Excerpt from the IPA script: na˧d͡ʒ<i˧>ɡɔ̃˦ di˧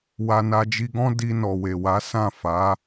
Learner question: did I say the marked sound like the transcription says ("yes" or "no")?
yes